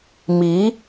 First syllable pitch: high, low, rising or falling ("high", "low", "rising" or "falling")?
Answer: rising